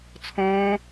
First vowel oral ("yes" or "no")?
no